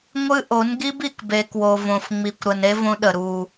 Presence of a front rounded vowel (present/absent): absent